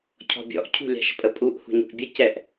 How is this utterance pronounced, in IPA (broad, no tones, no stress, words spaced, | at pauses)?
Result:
cʰɔ̤bʲɔ̰ʔ cʰṳlʲa̤ʃpʼəpʼuʔ hṳɲṳʔbʲə cɛʔ